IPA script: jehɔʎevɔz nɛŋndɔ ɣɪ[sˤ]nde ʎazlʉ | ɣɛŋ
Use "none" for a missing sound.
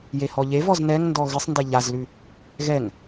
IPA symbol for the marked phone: sˤ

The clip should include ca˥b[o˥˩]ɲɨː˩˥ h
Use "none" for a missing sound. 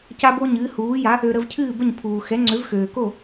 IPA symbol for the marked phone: o˥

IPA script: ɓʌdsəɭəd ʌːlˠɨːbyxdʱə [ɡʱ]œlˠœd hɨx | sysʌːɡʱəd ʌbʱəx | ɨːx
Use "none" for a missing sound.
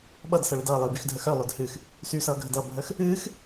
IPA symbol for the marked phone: x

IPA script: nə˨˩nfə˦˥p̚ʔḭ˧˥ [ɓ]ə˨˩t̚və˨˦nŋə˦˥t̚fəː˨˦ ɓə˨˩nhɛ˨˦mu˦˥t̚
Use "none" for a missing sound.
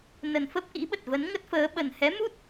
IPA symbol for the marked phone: ɓ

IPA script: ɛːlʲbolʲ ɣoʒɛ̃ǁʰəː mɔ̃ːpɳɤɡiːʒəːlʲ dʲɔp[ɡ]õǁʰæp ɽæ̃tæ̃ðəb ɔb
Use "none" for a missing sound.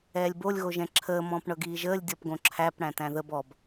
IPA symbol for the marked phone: ɡ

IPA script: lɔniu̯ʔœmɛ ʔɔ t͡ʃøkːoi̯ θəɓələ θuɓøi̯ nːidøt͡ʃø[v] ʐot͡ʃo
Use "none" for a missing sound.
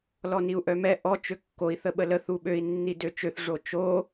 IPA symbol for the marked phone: θ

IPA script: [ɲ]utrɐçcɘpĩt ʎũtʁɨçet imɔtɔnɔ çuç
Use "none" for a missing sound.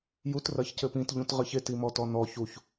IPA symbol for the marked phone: j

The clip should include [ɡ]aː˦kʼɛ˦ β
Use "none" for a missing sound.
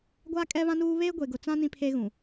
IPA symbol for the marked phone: ɡʷ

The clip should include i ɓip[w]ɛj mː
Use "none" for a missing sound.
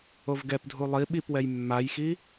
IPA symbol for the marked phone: w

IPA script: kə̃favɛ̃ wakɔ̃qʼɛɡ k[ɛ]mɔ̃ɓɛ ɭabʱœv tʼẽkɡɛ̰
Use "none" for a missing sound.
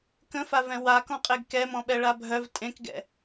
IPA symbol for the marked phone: ɛ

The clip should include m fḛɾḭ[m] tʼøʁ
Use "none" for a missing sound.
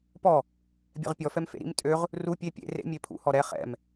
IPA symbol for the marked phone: m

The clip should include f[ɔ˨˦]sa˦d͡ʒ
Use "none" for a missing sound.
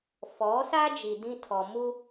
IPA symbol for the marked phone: ɔ˨˦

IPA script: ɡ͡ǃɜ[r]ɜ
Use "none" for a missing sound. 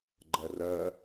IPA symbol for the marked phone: r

